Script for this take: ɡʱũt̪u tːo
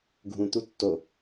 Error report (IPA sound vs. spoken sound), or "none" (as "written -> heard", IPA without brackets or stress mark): none